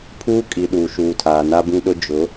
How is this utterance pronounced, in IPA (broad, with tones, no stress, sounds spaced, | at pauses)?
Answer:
pʰ uː˦ kʼ i˨ ɗ uː˨ ʃ uː˨ tʰ aː˨ n a˦ b ĩ˦ ɗ ʊ˦ d͡ʒ ʊ˨˦